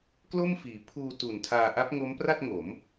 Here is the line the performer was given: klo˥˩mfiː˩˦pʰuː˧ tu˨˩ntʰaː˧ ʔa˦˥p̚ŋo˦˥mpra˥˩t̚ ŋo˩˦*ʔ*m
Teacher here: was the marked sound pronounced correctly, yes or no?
no